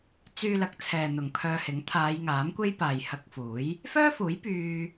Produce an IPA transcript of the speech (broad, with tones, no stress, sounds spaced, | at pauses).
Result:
t͡s yː˧ l ɐ˨˥ k̚ t͡sʰ ɛː˨ n̪ ʊ˨ ŋ pʰ œː˧ h ɪ˨˥ ŋ t̪ʰ aː˨˧ j ŋ aː˨˥ m kʷ e˥ j p aː˨ j h ɐ˧ k̚ f uː˨˥ j | f œː˥ f uː˨˥ j p yː˥